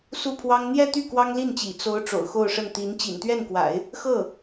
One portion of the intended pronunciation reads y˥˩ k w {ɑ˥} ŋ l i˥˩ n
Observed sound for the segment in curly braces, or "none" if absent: ɑ˥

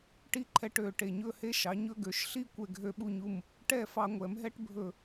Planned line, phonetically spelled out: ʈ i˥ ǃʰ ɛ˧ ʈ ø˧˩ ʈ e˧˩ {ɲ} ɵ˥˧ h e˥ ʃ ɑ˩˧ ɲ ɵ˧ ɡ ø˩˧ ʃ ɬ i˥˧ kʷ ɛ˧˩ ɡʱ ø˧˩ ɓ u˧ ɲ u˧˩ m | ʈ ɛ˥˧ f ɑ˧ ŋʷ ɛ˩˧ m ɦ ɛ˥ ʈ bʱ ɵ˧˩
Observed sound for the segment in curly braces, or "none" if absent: ɲ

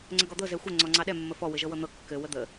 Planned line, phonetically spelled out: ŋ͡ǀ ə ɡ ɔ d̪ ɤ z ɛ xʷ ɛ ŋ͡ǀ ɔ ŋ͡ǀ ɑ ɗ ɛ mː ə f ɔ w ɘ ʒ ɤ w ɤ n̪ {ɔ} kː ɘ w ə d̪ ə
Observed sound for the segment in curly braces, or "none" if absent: ɤ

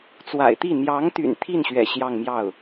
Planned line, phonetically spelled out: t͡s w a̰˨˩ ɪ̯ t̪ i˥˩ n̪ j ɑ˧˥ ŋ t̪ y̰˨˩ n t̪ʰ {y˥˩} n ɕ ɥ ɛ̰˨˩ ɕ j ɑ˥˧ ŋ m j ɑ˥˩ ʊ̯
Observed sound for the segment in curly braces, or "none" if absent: i˥˩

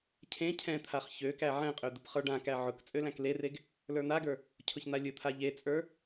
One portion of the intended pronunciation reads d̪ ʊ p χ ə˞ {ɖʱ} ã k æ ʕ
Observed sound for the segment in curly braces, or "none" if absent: ɖ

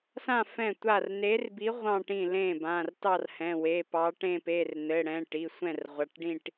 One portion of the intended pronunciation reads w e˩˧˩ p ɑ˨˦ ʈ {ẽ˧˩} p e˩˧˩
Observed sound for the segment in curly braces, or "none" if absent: ẽ˥˧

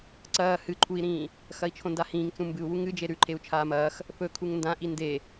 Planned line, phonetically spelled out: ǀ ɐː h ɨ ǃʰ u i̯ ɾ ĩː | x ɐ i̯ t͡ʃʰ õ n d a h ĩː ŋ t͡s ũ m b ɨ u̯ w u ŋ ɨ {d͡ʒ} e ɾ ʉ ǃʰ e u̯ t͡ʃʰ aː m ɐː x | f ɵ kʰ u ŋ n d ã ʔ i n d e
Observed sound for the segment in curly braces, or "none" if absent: d͡ʒ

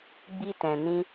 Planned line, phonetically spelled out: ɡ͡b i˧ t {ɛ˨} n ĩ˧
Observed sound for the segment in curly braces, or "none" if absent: ɛ̃˨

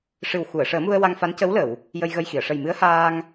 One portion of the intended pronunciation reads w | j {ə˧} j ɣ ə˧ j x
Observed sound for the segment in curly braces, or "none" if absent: ə˧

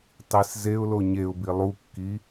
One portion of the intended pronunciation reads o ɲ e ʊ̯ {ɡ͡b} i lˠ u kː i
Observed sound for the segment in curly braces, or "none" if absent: b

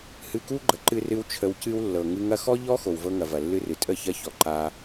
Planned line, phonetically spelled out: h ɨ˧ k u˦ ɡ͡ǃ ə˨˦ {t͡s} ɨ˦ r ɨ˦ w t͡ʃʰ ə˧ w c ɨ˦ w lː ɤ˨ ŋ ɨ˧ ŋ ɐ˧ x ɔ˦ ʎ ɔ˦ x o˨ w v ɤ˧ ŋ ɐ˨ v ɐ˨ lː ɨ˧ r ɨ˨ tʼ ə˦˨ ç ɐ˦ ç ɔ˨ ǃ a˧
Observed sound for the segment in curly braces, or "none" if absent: ǃ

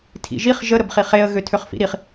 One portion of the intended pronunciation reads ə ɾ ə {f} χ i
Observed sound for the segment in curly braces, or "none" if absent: b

